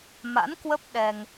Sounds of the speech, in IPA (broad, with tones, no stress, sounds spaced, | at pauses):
m a̰˧˥ n k w ə˦˥ p̚ ɗ ɛ˧ ŋ